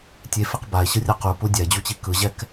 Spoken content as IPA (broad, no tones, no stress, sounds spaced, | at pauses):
tʲ e f i q b a e̯ ɕ ɯ rʲ ɤ q u p u dʲ a e̯ d͡ʑ u t͡ɕ i k ɯ ʑ ɛ k